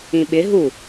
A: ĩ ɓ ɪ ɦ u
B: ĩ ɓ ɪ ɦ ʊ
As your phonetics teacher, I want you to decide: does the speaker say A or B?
A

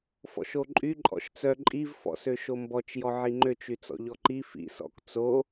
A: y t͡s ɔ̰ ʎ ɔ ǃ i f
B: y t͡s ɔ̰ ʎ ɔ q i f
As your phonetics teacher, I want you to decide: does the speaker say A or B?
A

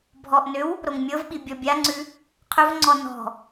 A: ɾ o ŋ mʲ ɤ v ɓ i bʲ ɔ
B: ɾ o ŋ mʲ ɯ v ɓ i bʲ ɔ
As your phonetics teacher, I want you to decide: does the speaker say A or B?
A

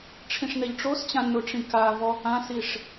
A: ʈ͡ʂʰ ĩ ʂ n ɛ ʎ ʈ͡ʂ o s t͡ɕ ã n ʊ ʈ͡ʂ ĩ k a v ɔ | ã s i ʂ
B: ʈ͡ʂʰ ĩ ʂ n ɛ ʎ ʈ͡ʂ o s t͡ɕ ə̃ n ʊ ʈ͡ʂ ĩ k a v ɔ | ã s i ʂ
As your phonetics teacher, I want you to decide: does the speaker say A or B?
A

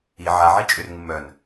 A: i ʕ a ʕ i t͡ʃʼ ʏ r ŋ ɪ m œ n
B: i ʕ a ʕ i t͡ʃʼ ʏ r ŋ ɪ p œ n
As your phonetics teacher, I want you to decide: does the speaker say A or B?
A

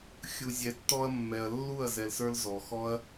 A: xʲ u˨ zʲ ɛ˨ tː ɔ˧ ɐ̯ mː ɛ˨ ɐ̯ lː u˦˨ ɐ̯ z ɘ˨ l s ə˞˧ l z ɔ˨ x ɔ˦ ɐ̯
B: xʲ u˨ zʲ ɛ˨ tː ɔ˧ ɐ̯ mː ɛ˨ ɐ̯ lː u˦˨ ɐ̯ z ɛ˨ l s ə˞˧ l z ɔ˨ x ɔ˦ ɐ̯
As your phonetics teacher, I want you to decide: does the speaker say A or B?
B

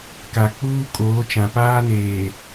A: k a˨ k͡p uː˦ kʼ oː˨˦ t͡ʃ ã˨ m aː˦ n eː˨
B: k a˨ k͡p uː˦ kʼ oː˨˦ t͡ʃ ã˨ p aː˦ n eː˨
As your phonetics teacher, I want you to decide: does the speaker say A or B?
B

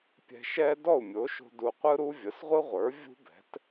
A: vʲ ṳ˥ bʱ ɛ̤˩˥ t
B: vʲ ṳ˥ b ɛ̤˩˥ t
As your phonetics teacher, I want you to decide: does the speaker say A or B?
B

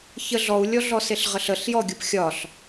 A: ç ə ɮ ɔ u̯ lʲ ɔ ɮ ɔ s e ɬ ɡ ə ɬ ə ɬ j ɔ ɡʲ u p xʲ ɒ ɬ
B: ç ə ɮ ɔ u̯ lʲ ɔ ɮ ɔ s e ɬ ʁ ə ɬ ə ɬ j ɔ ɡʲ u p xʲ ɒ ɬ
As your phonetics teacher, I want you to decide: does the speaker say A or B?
B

